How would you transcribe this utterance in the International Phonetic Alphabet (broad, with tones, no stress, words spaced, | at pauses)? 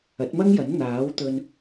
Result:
ɐ˨˥t̚mɐ˥ŋjɐ˨˥n n̪aː˨˥wt̪ɵ˧n